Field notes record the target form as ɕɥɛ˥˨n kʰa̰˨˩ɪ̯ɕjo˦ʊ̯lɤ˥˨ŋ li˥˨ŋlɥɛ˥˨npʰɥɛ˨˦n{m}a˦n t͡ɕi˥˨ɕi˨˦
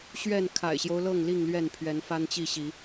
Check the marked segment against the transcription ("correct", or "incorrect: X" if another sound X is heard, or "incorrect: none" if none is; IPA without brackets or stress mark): incorrect: f